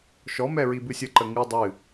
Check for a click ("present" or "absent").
present